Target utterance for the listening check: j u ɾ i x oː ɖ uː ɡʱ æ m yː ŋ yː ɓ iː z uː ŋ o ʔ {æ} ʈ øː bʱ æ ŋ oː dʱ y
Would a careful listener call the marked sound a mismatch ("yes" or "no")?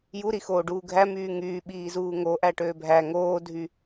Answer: no